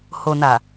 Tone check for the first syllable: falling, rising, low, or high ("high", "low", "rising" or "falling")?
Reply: low